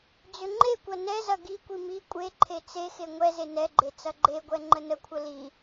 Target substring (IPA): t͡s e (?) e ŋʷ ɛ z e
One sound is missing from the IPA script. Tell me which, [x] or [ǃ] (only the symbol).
x